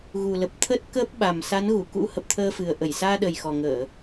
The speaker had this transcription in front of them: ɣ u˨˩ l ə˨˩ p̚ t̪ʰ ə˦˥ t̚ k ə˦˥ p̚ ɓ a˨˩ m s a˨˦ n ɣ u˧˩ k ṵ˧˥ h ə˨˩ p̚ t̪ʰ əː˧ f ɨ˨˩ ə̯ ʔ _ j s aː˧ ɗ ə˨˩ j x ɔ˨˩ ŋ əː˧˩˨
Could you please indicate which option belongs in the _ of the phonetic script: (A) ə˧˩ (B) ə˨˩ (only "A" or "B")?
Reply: A